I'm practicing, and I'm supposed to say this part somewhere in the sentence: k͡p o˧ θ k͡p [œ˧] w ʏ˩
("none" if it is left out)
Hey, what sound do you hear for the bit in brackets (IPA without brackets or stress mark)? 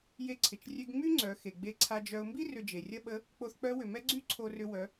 œ˧˥